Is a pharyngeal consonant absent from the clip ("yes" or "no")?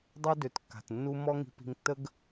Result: yes